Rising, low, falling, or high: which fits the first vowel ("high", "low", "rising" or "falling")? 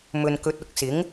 low